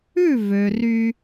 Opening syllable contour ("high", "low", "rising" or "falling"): falling